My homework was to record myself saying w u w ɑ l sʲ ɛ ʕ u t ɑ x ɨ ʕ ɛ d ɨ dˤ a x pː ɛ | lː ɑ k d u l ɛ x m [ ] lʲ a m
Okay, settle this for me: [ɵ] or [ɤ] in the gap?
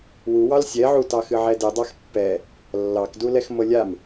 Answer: ɤ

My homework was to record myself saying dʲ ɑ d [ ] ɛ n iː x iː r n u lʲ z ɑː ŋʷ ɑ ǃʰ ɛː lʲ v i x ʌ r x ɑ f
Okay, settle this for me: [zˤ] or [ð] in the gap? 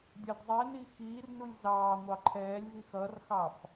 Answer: zˤ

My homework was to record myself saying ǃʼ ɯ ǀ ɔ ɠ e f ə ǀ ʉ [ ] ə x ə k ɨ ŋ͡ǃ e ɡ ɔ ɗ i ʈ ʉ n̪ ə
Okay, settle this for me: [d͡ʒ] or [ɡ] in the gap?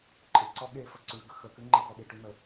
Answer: ɡ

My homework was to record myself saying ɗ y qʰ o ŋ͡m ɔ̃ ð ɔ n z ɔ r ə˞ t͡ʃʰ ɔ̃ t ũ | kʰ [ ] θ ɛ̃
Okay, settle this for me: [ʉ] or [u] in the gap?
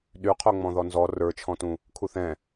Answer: u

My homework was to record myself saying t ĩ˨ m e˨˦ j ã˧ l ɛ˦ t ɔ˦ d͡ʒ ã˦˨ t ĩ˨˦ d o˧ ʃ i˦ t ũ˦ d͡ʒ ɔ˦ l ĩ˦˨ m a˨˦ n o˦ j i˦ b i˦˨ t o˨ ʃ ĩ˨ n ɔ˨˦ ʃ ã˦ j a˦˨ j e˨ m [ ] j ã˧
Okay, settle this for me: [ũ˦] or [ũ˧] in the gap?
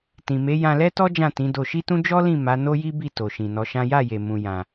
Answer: ũ˧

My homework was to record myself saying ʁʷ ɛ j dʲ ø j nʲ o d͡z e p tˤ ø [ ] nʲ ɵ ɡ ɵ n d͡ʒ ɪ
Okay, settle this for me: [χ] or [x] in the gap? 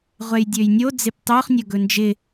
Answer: χ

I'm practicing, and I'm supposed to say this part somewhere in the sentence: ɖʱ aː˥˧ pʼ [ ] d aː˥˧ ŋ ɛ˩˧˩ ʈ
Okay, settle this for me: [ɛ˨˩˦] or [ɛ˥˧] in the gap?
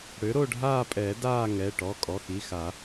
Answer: ɛ˨˩˦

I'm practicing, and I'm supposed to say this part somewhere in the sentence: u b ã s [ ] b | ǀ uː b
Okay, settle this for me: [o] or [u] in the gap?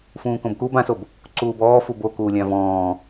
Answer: o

